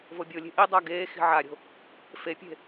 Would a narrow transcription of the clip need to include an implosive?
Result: no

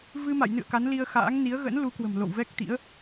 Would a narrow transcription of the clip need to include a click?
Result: no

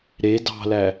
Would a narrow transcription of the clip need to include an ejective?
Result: no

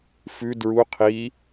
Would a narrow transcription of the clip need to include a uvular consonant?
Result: yes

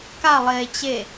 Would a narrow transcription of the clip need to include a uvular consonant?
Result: no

